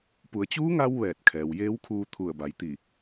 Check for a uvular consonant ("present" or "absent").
absent